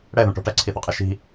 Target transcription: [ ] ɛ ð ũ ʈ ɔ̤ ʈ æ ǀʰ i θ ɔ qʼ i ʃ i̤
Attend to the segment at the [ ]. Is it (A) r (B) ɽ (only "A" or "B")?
B